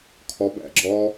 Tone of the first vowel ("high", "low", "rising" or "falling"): rising